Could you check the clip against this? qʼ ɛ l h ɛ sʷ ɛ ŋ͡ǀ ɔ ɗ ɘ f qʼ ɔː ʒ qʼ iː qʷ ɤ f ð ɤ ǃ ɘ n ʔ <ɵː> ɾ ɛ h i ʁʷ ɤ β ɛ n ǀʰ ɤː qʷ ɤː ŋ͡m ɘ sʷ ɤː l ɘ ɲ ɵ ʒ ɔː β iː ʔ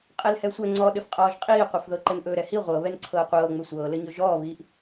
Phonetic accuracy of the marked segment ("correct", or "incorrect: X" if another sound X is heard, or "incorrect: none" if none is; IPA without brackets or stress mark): correct